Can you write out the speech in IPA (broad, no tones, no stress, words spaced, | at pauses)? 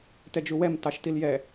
tɛd͡ʒuwɛm tɑʃtiljɛ